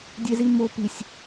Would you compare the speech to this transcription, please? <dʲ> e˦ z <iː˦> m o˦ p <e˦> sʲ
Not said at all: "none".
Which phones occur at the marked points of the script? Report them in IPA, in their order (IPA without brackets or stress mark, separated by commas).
dʲ, i˦, i˦